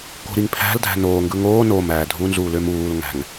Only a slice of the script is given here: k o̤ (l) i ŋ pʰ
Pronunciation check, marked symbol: incorrect: ɾ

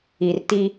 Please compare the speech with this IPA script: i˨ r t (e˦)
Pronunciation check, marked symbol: incorrect: i˦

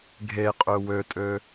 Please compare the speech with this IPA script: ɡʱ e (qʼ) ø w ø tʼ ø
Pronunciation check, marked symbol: correct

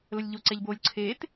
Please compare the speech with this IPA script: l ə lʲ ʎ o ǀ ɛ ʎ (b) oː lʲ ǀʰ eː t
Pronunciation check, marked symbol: correct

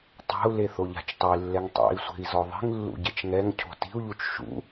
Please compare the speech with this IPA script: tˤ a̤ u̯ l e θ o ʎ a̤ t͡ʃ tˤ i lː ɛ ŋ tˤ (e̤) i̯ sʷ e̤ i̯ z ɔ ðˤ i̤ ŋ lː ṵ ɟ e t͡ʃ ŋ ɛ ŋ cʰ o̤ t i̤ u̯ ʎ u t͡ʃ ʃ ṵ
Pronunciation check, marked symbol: incorrect: ḛ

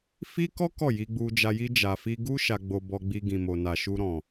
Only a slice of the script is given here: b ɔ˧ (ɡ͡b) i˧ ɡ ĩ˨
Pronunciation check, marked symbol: correct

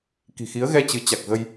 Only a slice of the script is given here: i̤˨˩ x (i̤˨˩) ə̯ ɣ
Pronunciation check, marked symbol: incorrect: i˨˦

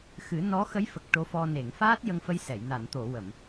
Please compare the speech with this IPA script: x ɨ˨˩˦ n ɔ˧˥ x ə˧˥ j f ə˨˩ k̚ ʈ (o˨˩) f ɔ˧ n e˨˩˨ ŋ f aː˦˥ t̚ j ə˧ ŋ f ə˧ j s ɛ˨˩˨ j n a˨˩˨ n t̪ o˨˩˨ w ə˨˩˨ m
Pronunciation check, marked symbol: incorrect: o˧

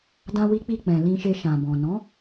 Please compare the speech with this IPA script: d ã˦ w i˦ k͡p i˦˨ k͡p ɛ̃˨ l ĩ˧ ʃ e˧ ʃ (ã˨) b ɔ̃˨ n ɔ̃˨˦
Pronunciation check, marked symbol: correct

